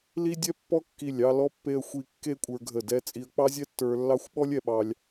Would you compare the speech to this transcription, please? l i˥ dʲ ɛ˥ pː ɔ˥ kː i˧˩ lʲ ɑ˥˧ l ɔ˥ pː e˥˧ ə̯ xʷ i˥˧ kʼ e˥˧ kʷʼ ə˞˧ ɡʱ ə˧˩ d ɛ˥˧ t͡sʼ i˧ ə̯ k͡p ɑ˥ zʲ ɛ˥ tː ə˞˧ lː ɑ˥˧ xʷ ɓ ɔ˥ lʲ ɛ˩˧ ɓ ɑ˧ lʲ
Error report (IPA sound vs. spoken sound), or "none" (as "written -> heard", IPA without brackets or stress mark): kʼ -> kː